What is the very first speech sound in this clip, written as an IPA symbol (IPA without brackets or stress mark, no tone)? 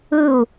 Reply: ɯ